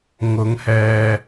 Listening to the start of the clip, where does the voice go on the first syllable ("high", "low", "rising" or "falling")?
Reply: rising